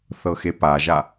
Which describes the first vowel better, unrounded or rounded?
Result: unrounded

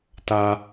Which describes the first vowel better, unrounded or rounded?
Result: unrounded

